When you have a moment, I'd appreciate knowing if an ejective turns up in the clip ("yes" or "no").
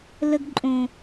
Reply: yes